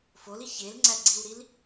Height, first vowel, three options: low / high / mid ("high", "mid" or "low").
mid